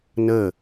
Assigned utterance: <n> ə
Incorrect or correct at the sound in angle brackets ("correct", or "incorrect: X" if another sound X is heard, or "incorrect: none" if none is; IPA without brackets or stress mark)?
correct